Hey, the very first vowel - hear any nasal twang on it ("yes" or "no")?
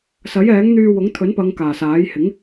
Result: no